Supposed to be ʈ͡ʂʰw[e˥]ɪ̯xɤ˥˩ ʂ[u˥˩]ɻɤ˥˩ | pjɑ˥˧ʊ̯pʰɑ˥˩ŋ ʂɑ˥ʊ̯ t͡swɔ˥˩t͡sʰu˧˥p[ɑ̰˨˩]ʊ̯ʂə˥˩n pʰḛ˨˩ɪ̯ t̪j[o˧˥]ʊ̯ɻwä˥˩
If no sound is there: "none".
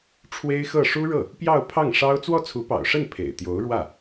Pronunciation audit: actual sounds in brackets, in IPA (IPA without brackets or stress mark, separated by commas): e˥, u˥, ɑ̰˨˩, o˧˥